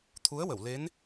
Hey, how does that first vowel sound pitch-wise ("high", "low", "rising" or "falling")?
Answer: rising